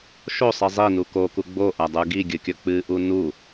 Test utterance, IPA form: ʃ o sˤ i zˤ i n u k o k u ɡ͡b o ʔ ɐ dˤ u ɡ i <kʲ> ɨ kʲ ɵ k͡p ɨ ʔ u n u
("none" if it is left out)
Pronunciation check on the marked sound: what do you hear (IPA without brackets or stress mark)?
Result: ɡʲ